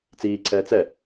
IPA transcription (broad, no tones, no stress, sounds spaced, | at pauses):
t͡s iː ǀʰ ɛː t͡s ɛ